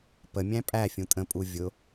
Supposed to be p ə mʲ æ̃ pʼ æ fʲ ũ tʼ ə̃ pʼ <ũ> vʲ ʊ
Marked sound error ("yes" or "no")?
yes